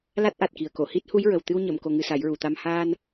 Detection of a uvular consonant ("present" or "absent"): absent